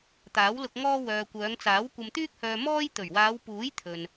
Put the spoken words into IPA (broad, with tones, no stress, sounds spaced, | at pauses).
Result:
t̪ aː˨˥ w l ʊ˧ k̚ ŋ ɔː˥ w œː˨ kʷ œː˨˧ ŋ t͡s aː˨˥ w kʷ ɐ˧ m t̪ yː˥ k̚ h œː˧ m ɔː˥ j t̪ ɵ˨˩ ɥ w aː˨˧ w p uː˨˥ j t̪ʰ ɵ˨ n